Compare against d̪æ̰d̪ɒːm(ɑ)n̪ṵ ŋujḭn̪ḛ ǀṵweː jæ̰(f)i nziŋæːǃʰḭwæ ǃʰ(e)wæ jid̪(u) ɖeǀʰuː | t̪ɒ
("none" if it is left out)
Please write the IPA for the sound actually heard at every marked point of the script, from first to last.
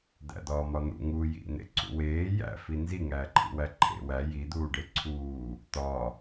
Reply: ɒ, f, ḛ, uː

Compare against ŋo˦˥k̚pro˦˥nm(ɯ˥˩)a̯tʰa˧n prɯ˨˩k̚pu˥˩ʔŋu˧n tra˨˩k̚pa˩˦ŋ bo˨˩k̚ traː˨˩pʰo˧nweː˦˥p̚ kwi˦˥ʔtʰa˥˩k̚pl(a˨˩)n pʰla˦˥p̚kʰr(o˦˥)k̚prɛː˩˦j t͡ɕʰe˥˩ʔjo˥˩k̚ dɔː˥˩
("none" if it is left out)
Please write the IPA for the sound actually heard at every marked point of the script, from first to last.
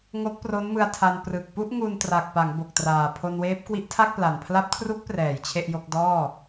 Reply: ɯ˧, a˨˩, u˦˥

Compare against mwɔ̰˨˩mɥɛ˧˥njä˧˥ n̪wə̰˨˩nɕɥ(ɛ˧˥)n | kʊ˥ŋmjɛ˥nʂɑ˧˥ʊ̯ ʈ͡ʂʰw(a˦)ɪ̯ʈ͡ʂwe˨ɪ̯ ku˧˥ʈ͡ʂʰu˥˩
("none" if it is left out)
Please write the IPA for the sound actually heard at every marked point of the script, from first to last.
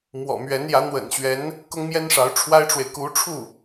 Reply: ɛ˧˥, a˥

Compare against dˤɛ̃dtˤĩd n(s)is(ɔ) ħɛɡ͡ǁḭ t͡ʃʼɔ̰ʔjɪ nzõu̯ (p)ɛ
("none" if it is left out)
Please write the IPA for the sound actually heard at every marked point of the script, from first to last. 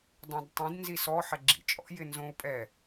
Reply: z, ɔ, pʼ

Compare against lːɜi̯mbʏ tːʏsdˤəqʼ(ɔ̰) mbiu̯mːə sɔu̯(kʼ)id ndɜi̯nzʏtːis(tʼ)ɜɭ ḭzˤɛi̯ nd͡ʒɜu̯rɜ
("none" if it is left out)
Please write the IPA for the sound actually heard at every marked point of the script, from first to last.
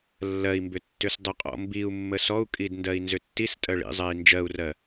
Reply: ɔ̰, kʼ, tʼ

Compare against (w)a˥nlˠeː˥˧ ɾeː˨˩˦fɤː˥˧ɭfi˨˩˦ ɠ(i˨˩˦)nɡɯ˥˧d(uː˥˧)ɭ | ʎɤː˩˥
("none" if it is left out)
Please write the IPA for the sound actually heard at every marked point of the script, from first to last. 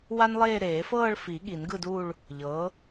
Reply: w, i˨˩˦, uː˥˧

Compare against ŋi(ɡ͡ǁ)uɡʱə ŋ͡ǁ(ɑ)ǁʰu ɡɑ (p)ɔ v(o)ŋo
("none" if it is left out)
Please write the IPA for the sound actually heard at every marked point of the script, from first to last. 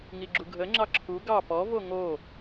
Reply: ɡ͡ǁ, ɑ, p, o

